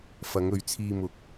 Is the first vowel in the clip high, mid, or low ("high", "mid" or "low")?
low